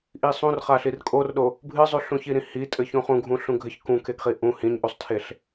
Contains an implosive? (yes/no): yes